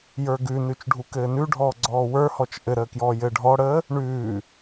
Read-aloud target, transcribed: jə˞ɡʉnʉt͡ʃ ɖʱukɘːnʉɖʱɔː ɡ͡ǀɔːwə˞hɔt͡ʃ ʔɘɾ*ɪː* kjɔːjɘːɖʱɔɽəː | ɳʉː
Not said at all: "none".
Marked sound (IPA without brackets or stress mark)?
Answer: əː